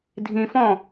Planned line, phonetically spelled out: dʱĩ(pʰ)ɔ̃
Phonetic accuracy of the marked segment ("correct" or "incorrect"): incorrect